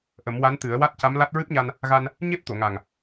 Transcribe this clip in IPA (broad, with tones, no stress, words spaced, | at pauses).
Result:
ʔə˨˩˦mwa˧˥nt̪ɨ˨˩˦ə̯ wa˦˥t̚ca˧˥mla˦˥t̚ ɹɨ˦˥p̚ɲa˧n | ɣa˧n | ɲe˦˥p̚t̪o˨˩˨ŋa˨˩ŋ